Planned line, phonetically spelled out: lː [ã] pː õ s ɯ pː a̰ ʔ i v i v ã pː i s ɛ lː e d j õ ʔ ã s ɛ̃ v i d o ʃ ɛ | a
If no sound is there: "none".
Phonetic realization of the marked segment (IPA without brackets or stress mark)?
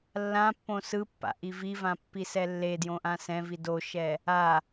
ã